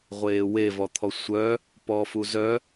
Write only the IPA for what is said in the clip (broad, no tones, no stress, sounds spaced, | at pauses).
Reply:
ʁʷ eː w e v ɔ t̪ʰ ɔ sʷ œ | p ɔː f u z œ